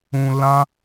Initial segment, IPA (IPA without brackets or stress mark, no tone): ũ